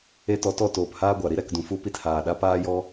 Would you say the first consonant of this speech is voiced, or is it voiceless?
voiceless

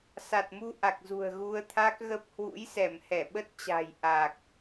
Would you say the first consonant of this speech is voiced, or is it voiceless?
voiceless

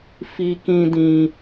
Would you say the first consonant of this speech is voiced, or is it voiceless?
voiceless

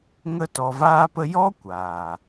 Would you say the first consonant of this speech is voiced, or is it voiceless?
voiced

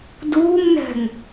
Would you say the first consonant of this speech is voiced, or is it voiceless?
voiced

